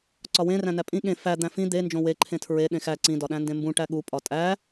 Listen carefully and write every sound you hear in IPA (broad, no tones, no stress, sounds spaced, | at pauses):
ǀ ɒ w ẽ r æ̃ n æ pʼ ĩ ɠ ẽ f æ d̪ æ̃ f ĩ d̪ e n d͡ʒ õ w e ǃʰ ẽ tʰ ɹ e ɗ ẽ x æ ǀ ĩ d ɒ ɗ æ̃ n d ẽ m b ũ ʈ æ ɠ u pʼ ɒ tʼ æ